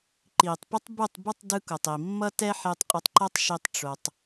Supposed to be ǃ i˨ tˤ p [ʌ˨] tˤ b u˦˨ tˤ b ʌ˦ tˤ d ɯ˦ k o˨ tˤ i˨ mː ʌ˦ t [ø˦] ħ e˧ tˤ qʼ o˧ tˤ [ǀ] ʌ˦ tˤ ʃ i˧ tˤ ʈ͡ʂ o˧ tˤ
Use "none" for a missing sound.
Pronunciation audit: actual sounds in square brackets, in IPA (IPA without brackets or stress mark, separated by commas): ʌ˦, ɛ˦, ǃ